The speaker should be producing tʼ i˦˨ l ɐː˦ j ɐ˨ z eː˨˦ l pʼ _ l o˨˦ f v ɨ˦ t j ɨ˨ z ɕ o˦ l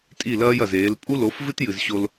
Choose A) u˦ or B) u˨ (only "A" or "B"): A